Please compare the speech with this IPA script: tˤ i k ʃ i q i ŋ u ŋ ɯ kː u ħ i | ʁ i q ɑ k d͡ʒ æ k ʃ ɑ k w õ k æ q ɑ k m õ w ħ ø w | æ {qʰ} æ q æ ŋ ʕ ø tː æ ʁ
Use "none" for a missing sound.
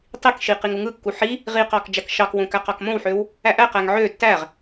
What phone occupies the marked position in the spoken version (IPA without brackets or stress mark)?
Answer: ʔ